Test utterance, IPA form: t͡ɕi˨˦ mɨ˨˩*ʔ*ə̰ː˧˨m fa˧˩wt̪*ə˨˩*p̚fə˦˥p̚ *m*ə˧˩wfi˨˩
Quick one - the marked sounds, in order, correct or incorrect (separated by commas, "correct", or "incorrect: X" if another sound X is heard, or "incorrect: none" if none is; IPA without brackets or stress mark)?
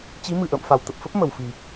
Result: correct, correct, correct